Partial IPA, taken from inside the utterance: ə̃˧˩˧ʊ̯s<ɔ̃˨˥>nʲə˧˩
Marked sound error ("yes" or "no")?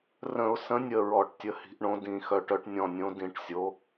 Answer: yes